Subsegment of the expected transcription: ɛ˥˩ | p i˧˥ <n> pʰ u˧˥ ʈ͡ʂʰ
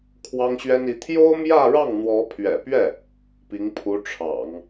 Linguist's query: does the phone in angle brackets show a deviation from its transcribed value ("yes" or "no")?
yes